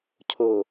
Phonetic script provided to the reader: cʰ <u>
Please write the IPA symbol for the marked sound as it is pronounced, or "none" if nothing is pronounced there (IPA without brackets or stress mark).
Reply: o